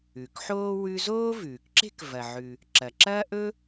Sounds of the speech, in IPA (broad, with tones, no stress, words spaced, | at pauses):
ʉ˩kħoː˥ wʉ˥ zoː˥vʉː˩kǁe̤˥k vɐ˩ʕʉ˩ | ǁɐ˩ǁɐː˥ʔɵ˥